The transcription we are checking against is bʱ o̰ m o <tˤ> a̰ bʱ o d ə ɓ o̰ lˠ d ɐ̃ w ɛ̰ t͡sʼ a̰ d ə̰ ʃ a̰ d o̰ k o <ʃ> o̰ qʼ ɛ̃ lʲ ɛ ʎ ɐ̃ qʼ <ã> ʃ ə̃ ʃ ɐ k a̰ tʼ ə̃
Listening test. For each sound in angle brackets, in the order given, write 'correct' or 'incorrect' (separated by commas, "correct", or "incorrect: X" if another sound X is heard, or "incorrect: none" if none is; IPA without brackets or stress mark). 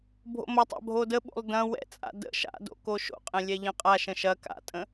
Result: correct, correct, incorrect: a